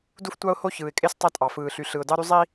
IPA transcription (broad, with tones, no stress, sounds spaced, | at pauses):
d u˧ f tʷ ɑ˧ ʊ̯ h o˧ ç ɯː˨ ɪ̯ kʼ e˧ s tˤ æ˧ tʼ ɑ˨ f ɯː˨ ɬ y˨ ɬ ɯ˨ ʊ̯ d ɑ˧ ɾ y˧ zˤ i˧